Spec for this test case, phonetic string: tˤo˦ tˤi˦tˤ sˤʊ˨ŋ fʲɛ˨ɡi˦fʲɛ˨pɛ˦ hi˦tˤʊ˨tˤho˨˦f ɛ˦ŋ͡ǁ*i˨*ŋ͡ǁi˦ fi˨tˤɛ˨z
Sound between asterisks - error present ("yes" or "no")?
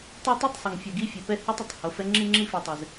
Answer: yes